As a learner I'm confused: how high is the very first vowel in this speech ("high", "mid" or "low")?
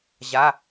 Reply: low